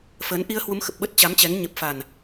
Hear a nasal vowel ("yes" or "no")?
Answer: no